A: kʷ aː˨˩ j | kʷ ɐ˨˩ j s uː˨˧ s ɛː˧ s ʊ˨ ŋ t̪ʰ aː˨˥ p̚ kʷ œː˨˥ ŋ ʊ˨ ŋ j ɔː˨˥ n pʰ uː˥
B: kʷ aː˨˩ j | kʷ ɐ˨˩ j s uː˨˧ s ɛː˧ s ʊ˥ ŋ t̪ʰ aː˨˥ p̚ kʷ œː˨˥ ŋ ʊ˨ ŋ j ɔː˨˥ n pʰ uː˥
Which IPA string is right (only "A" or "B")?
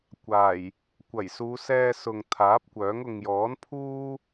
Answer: A